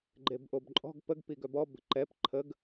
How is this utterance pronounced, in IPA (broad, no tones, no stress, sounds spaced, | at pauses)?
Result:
ɡ͡ǃ e b ʔ o b ǃʼ ɔ̤ ɡ p ə ɡ p i ɡ œ b ɔ b ə̤ ǃ ɛ p ǃʰ ə ɡ